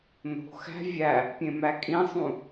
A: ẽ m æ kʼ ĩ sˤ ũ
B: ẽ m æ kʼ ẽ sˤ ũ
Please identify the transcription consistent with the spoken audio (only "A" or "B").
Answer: A